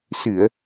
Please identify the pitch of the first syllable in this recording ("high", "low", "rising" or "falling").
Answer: low